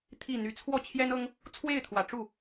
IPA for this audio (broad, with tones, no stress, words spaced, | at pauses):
t̪ʰi˥˩ n̪y˨˩t͡sʰwɔ˥˩ t͡ɕʰjɛ˥nɤ˥ŋ | t͡sʰwe˥˩ɪ̯t̪ʰwä˨˩ʈ͡ʂu˥˩